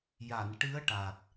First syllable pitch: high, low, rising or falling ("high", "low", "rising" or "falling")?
low